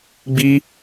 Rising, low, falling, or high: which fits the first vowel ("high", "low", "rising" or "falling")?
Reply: high